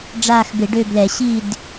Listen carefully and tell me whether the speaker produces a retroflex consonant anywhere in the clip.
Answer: yes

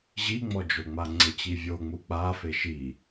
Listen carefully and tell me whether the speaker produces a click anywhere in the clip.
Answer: yes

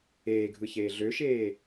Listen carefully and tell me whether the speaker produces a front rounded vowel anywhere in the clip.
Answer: yes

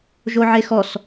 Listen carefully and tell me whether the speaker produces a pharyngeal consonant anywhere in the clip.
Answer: yes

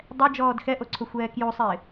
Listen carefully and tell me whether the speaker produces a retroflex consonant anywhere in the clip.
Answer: no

